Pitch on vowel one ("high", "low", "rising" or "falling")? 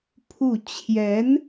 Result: falling